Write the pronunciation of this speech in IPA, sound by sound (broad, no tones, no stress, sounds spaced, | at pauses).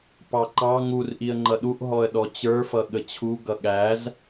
p ɑ ǃ ɑ ŋ u r ʔ i ə̯ ŋ͡ǃ ʌ ɗ u ʔ ɦ ɔ ə̯ ɗ ɔ t͡ɕ ə˞ f ʌ ɠ ə t͡ɕʰ u ɡ ʌ ɠ æ z